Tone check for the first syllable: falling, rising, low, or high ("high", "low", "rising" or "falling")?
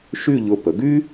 falling